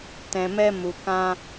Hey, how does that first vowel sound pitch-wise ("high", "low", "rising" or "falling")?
low